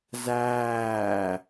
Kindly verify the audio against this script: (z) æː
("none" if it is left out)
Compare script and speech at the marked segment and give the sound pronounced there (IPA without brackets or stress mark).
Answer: z